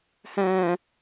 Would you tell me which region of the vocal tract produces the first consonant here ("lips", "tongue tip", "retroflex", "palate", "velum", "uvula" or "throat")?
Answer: throat